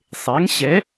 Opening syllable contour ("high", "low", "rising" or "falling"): rising